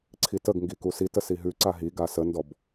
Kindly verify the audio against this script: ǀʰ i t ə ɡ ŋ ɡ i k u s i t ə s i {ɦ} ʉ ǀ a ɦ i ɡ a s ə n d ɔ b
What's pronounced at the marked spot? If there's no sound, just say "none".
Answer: ɦ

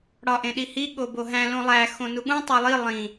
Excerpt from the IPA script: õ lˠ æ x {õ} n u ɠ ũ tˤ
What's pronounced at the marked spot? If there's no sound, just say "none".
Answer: õ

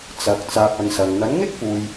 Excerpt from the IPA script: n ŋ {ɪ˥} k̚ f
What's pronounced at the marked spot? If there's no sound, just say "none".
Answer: ɪ˥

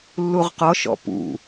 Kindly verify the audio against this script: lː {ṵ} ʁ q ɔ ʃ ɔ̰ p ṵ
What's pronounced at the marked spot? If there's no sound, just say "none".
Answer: u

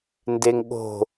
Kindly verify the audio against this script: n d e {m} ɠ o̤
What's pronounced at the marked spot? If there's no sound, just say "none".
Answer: ŋ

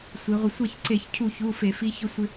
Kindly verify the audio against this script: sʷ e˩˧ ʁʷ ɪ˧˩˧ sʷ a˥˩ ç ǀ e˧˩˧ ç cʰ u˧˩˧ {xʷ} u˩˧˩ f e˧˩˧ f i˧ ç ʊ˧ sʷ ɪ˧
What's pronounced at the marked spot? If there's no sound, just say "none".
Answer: ç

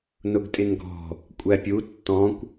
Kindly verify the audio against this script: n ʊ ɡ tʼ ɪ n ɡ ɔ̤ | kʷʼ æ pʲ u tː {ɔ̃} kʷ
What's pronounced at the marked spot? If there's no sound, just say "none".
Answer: ɔ̃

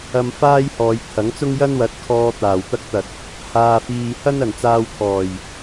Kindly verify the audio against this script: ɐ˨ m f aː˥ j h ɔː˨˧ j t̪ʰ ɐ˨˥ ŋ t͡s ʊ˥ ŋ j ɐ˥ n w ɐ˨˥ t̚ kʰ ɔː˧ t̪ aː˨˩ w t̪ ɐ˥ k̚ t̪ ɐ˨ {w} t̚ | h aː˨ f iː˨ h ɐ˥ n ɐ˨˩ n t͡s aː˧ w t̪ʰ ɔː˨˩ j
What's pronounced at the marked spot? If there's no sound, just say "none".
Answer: none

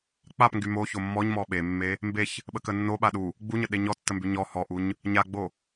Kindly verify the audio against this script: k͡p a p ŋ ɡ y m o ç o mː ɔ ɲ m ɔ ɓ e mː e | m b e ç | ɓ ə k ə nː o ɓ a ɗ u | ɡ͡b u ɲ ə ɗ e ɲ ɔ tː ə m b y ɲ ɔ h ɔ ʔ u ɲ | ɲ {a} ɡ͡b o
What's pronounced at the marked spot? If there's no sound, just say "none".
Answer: a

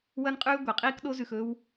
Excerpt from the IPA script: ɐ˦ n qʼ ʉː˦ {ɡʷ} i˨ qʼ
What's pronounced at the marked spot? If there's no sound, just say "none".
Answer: ɡʷ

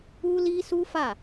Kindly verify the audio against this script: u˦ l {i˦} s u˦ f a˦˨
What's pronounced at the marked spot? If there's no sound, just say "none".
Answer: i˦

